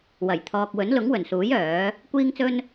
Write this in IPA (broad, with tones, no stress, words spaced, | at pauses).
wɐ˨˩jt̪ʰɔː˨k̚ wɵ˨˥nlʊ˨˥ŋwɵ˨˩nsuː˨˥j œː˨˥ | kʷiː˥ŋt͡sɵ˥n